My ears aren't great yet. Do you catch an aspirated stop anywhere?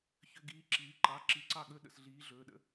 no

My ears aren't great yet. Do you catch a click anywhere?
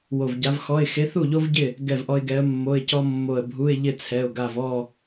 no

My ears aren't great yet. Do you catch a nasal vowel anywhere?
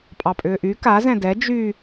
yes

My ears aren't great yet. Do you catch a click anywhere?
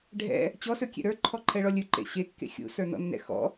yes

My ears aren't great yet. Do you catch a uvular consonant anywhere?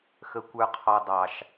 yes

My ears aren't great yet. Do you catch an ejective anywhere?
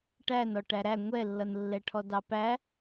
no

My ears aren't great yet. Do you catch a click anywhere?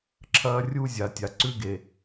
yes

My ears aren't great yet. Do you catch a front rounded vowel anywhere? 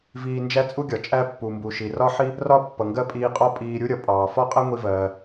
no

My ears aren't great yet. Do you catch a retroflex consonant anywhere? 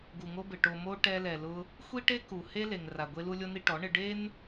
yes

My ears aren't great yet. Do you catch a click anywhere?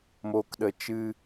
no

